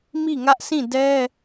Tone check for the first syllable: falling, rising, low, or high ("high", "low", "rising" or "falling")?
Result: falling